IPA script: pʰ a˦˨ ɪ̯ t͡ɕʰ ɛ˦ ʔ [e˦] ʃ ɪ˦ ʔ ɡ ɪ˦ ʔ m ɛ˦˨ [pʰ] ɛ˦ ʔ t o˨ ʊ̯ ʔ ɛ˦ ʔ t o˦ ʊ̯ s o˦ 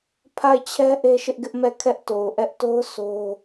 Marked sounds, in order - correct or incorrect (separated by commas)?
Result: correct, incorrect